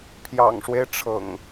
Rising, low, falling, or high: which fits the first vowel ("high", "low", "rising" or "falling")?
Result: low